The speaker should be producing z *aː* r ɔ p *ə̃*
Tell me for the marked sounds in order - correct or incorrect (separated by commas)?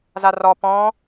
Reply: incorrect, incorrect